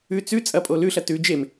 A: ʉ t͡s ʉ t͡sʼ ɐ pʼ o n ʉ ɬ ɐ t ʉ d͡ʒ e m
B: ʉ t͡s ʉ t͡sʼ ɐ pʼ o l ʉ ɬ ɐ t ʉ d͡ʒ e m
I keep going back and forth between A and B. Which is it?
B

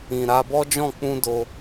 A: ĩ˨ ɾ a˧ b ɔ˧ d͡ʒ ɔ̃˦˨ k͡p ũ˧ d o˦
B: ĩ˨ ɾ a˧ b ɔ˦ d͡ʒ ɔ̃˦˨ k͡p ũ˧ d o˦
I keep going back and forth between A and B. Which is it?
B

